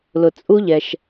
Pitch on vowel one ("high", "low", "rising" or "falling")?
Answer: low